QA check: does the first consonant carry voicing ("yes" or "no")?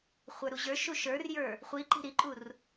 no